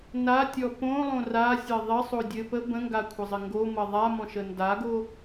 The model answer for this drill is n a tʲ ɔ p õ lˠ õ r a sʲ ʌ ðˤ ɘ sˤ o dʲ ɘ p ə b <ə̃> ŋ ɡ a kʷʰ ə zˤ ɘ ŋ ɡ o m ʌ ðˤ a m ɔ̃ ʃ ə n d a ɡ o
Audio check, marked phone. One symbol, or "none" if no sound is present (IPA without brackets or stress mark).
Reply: ə̃